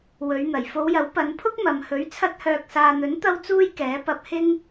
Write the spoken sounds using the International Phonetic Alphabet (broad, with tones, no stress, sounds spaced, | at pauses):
w ɵ˨˧ ɥ n̪ ɐ˨˩ j f o˨˧ w j ɐ˨˥ w p ɐ˨˧ n pʰ ʊ˥ k̚ m ɐ˨ m h ɵ˨˥ ɥ t͡sʰ ɐ˧ t̚ h œː˨ k̚ s aː˨ n̪ ɵ˨˥ n t̪ ɐ˥ w t͡s uː˥ j k ɛː˨˥ p ɐ˧ p̚ h ɪ˥ ŋ